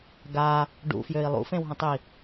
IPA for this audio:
ɡ a | ɖ ṵ f j ø i̯ lˠ ṵ f ẽ w ɦ ə̃ tˤ i

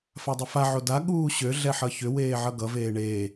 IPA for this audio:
f a dˤ ʏ f a ʕ o d a ɠ uː ɕ ø ɮ ɛ ħ ʌ ç ʏ w eː ʕ ʌ ɡ ʌ v eː ɳ eː

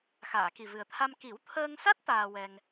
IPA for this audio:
x aː˨˩˨ k i˨˩ v ɨ˨˩ ə̯ t̪ʰ a˧ m k i˨˩˦ w t̪ʰ əː˧ ŋ s a˦˥ t̚ t̪ aː˧ w ɛ˧ ŋ

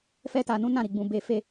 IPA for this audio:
f ɛ˦ t a˧ n ũ˦ n ã˦˨ ɾ i˨ ɡ͡b ũ˨ b e˧ f e˧

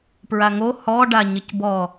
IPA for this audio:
p ɹ a ŋ o h ɔ ɖ a ɲ ɪ c b ɔ

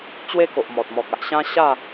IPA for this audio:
t͡ɕ w e˦ k o˨ ʔ m ɔ˨ t̚ m ɔ˨ k̚ a˨ ʔ ɕ ã˦ ɕ a˥˧

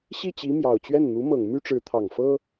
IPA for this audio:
ɕ i˥˩ t͡ɕ i˧˥ m j ɑ˨˩ ʊ̯ t͡ɕ ɥ ɛ˥˩ n n̪ u˧˥ m ɤ˨˩ ŋ m y˥ ʈ͡ʂ ɻ̩˧˥ t̪ʰ ɑ˨˩ ŋ f ɤ˥

